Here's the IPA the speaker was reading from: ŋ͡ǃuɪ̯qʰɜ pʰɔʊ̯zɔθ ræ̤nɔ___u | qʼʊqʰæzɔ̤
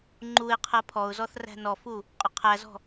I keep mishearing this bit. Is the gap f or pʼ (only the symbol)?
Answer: f